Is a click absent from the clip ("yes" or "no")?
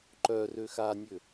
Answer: no